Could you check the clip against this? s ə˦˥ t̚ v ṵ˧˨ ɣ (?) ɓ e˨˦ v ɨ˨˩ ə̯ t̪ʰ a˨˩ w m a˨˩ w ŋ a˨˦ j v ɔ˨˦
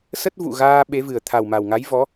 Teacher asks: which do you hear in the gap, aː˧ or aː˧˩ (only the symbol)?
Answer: aː˧